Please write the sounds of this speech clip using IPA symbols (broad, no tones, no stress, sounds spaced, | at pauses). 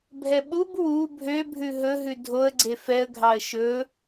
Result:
bʱ ɛ ɓ u b w u bʱ ø bʱ ʉ ɦ ɵ ɦ ʉ dʱ o ə̯ ɡ͡ǀ e f ɛ ə̯ ɡʱ ɑ ə̯ ʃ ɵ